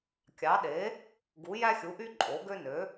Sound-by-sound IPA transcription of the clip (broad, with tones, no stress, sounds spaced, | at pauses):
kʲ ɑ˩˥ ɗ e˩˥ | ɡ u˩˥ j æ˦ xʲ u˩˥ ʔ y˦ ǃʼ o˩˥ ɡ ø˦ n ø˩˥